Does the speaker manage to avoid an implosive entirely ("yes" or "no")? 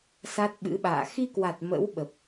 no